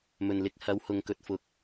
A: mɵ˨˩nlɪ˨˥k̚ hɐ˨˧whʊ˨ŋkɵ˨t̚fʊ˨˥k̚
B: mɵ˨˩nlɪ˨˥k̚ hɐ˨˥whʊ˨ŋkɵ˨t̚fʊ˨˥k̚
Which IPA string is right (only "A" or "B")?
A